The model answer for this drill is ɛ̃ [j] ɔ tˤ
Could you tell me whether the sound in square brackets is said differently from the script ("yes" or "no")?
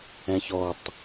yes